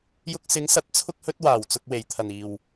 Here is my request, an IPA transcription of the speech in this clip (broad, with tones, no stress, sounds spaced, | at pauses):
j ʊ˧ k̚ s ɪ˨˧ ŋ s ɐ˨˥ t̚ t͡sʰ ʊ˥ k̚ h ɵ˥ t̚ w aː˨˩ w t͡s ʊ˧ k̚ w e˨˩ j t̪ʰ ɐ˨˩ n iː˨˩ w